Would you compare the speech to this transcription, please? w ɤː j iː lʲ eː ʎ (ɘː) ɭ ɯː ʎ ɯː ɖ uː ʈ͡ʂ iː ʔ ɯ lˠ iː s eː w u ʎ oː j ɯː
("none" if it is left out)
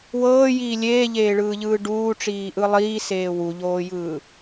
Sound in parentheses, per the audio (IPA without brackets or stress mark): eː